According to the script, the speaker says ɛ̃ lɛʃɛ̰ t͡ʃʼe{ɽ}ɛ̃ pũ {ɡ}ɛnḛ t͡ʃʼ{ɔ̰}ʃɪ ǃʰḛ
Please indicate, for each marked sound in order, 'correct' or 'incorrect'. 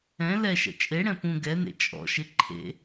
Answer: correct, correct, correct

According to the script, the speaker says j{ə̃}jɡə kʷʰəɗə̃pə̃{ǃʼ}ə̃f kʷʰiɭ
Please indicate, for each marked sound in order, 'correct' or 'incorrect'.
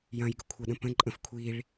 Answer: incorrect, correct

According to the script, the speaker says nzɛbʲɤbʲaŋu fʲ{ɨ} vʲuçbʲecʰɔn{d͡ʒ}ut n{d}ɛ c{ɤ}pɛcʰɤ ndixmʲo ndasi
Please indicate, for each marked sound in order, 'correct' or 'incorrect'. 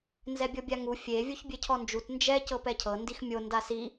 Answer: incorrect, correct, incorrect, correct

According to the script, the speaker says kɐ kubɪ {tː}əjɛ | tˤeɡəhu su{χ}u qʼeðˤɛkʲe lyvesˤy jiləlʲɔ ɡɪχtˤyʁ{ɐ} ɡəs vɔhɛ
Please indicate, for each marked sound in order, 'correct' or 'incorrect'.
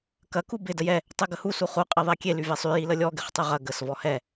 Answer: incorrect, correct, correct

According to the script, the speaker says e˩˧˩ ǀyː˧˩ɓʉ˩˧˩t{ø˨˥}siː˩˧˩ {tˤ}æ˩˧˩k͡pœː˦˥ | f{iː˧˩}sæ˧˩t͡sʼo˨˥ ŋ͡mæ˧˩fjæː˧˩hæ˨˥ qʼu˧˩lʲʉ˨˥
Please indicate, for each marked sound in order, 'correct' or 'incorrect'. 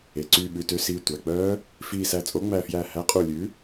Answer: correct, incorrect, correct

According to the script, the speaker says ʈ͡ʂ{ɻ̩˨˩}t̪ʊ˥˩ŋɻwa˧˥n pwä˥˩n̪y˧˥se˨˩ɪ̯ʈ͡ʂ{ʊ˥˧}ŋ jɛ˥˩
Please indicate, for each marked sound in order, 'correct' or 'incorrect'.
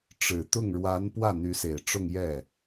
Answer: correct, correct

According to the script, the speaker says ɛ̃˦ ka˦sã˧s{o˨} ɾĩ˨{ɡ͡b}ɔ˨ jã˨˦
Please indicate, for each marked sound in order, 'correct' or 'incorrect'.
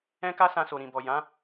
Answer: correct, incorrect

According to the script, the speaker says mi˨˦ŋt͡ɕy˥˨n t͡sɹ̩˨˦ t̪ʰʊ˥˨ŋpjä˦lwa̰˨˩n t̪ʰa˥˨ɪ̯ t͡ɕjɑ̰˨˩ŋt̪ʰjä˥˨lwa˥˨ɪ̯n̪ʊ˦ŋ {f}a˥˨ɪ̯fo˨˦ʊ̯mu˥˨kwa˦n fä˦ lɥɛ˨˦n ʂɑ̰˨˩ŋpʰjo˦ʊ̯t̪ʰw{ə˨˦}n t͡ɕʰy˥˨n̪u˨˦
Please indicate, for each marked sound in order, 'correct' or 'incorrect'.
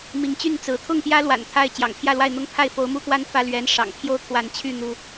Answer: incorrect, incorrect

